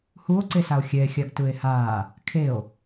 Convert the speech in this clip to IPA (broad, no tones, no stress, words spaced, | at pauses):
huo̯ǀesao̯ xʲɛe̯xʲaɡ tɯe̯haː | kʰeo̯